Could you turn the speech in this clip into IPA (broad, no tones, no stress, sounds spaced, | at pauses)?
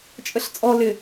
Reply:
t͡ʃʼ ə ɬ t͡sʼ ɔ l ɪ